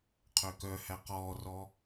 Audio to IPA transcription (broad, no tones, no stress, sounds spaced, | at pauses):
qʰ ø k œ h æ q ɔː r ɔ